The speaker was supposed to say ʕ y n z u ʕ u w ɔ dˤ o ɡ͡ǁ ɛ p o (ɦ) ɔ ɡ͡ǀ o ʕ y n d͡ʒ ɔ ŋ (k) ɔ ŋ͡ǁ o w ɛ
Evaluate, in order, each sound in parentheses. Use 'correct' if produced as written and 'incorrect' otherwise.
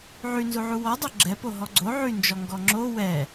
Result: correct, incorrect: ɡ

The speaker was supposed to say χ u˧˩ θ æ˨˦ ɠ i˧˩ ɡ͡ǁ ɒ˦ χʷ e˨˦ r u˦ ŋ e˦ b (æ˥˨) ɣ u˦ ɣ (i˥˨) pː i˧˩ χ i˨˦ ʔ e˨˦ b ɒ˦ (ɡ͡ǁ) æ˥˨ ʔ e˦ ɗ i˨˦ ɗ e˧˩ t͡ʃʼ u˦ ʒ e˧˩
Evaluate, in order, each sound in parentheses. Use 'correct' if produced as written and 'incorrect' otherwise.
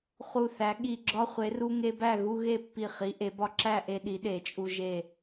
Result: correct, incorrect: e˥˨, incorrect: ǁ

